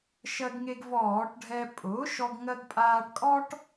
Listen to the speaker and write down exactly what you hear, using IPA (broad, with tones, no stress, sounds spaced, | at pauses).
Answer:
ʃ ɜ˧ ɡ ŋ e˧ ɡ v ɔː˧˩˧ ʈ ɖʱ ɛ˧ pʼ ʊː˩˥ ʃ ɔ˧ ɡ ŋ ɜ˧ ɡ pʼ aː˧ ʈ kʼ ɔ˥ ʈ